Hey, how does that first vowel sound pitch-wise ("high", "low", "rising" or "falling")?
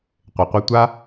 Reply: low